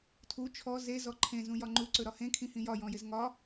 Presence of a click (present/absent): present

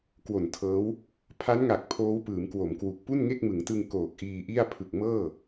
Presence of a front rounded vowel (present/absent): absent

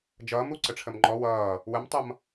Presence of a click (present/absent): present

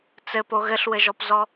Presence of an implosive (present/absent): absent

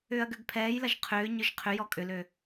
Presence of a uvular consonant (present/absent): present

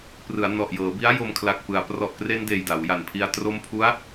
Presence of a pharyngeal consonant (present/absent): absent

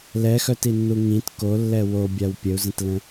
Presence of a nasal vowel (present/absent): present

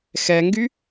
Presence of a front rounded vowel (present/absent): present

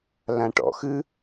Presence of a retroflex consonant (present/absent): present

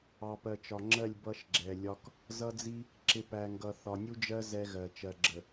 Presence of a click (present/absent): present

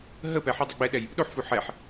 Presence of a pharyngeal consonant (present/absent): present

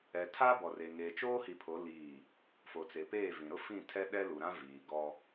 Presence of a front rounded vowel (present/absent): absent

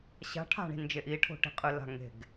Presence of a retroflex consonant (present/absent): present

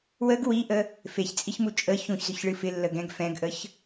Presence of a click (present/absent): absent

